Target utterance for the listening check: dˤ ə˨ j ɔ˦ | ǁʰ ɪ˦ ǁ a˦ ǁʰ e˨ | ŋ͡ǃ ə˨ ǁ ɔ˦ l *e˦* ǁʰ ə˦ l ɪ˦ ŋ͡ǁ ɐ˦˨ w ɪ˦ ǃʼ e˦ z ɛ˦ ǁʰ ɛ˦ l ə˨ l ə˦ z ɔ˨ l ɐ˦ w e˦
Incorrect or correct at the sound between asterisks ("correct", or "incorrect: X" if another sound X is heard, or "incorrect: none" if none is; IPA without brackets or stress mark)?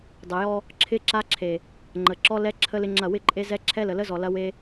incorrect: ɛ˦